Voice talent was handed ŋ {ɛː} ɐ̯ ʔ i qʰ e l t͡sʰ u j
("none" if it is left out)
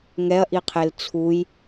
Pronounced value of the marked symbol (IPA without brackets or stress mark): ɛ